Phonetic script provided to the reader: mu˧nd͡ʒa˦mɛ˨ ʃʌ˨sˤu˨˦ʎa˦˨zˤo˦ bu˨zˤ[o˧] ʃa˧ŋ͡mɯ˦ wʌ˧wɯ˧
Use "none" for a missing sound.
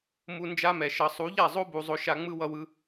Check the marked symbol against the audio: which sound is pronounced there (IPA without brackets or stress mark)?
o˧